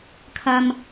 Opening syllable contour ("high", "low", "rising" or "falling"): low